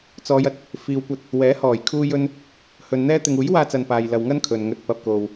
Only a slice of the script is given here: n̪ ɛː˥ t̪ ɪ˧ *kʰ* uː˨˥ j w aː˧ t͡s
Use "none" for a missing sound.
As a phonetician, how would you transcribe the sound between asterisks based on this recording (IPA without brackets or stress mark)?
ŋ